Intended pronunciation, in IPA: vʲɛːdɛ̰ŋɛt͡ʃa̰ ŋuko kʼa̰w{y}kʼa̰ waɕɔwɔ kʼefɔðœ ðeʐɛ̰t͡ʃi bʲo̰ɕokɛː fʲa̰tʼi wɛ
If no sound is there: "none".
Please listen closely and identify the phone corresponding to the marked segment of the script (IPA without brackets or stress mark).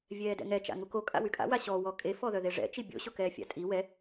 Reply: y